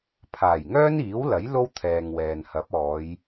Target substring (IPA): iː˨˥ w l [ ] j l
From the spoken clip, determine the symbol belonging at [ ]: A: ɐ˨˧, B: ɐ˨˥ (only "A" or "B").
B